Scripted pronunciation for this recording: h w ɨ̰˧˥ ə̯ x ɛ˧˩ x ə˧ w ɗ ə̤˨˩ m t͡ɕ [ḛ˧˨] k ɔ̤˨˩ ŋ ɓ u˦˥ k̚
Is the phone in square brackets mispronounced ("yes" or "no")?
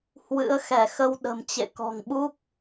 no